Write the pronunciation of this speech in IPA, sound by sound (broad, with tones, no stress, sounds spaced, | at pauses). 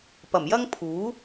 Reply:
p ɐ˨˩ m j ɐ˥ ŋ pʰ uː˨˥